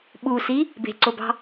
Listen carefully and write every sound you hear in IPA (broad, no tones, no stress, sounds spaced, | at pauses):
ɓ u s i | b e̤ ǀ o b ɑ̤